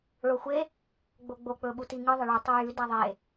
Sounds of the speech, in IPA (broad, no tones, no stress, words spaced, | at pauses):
ɭoxʷe | ɡ͡boɡ͡bo k͡pɵɓutiŋɨ ðˤɐɭu tˤɵjʉ daðˤe